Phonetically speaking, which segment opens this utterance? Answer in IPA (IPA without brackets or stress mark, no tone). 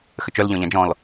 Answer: x